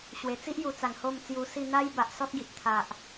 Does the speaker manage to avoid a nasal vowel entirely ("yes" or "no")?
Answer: yes